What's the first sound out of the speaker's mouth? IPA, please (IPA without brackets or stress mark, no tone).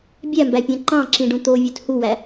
bʲ